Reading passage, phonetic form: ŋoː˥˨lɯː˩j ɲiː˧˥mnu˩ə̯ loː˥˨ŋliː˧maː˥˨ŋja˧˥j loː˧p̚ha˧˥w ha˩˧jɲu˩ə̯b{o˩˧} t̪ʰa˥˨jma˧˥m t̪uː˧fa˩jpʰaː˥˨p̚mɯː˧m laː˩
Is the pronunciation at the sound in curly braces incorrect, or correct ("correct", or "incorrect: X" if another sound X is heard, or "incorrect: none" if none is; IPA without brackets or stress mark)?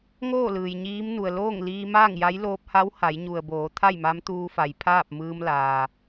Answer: incorrect: oː˩˧